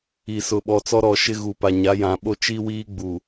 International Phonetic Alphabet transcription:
i˨ s ʊ˨ ɓ ɔ˨ t͡s ɔ˦ ɾ ɔ˨ ʃ ɪ˦ ɣ u˨ p a˨ ɲ a˨˦ j ã˨ ɓ o˦ t͡ʃ i˦ w iː˦ ɡ͡b u˨

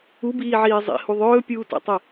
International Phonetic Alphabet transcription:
u b iː ʕ iː zˤ ḭ h u ðˤ ɵː pʲ uː t ɛ̰ tˤ ɛ

